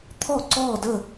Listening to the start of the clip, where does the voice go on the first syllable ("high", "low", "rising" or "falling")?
falling